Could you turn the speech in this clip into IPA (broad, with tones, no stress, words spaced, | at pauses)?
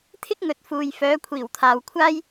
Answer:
t̪ʰɪ˥k̚ŋɵ˨˥t̚fuː˨j fœː˨˧kʷʰiː˨˩wt̪ʰaː˨w kʷʰaː˥j